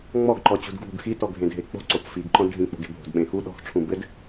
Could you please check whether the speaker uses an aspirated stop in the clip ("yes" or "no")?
yes